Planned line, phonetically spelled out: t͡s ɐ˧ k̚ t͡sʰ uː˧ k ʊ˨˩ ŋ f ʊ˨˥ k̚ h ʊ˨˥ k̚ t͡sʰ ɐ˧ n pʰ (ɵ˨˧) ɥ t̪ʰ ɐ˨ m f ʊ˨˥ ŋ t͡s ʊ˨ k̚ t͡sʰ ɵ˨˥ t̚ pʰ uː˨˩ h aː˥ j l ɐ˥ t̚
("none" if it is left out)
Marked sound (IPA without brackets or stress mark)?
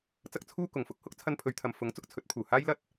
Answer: ɵ˨˧